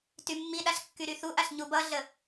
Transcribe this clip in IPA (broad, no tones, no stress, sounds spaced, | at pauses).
t y mː i ɗ a ɬ kː y ɾ y θ u ʔ a ɬ ɲ u b ʌ ɮ ə